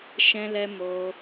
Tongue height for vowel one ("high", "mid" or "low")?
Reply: mid